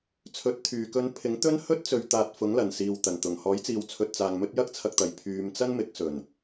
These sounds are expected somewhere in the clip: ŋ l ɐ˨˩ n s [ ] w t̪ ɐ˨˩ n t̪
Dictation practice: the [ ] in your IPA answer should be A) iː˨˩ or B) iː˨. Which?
B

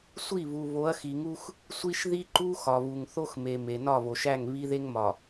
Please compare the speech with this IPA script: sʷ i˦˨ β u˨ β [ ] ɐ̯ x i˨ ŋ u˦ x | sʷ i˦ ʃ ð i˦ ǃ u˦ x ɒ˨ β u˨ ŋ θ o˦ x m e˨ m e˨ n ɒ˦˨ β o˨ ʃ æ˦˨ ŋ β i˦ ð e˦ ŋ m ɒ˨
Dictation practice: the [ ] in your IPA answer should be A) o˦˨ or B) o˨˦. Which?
B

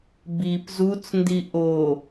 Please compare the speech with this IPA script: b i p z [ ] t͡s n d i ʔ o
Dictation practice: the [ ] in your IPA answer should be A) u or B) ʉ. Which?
A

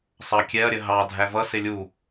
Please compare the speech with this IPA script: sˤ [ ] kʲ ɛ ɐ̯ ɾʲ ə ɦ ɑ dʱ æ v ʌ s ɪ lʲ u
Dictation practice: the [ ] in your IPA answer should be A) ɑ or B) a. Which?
A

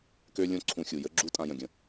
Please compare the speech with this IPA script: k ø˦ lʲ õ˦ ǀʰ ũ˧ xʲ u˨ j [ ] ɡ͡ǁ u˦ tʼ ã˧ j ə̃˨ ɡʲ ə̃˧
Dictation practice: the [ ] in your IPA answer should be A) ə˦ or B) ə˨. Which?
A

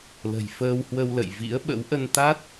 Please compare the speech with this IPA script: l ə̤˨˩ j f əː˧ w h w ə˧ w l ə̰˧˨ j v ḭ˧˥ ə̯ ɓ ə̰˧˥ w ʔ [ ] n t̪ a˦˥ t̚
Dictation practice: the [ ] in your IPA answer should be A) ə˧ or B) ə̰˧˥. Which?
A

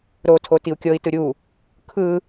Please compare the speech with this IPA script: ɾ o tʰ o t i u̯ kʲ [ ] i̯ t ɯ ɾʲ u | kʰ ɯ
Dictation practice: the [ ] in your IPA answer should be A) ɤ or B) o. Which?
A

